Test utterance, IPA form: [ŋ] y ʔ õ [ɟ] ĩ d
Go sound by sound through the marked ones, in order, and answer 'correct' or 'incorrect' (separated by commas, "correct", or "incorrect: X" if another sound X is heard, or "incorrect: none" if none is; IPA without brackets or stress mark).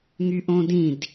correct, incorrect: d